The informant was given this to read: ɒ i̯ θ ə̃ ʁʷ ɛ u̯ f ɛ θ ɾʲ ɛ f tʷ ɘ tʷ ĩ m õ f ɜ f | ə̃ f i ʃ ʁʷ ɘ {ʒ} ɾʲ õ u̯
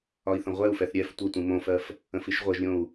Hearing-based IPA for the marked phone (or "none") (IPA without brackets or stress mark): ʒ